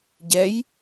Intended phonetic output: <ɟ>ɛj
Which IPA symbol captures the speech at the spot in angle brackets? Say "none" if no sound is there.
ɟ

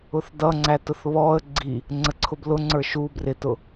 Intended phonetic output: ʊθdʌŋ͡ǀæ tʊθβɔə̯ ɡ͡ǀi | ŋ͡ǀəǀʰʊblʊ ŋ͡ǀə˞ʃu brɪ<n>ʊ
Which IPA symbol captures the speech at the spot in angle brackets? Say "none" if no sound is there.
t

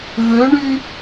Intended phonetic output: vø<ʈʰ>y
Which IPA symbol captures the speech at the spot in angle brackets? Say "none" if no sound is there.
ɳ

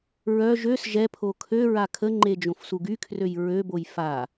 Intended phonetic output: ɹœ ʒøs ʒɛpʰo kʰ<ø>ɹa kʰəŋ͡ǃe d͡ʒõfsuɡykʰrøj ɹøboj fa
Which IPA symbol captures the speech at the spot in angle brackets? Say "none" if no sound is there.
ø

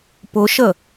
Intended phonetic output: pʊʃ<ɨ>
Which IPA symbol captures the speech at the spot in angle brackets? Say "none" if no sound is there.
ə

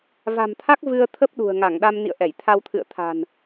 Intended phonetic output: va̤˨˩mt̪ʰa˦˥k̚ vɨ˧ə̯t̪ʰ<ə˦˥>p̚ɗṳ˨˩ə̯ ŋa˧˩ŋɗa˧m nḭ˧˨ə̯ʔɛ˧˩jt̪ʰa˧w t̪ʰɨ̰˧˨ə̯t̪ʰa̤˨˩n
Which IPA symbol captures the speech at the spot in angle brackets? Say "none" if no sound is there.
ə˦˥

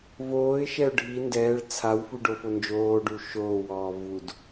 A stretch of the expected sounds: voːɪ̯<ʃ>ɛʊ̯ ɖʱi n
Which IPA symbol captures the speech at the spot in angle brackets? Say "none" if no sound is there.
ʃ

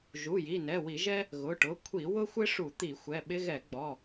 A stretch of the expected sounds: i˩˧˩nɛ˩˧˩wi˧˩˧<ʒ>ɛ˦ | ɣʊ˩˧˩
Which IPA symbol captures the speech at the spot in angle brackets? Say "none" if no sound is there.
ʒ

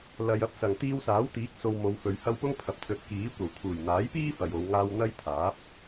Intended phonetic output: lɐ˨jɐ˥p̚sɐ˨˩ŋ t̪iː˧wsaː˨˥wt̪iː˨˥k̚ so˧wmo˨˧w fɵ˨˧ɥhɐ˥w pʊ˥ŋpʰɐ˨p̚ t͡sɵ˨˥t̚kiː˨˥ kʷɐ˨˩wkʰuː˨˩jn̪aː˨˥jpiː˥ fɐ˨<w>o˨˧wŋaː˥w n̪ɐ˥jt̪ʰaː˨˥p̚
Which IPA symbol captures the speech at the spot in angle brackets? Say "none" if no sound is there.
j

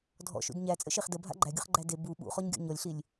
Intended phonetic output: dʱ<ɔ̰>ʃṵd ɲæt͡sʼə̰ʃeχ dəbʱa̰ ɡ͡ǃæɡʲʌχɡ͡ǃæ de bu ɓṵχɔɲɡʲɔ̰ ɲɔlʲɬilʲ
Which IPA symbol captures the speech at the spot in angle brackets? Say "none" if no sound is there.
ɔ̰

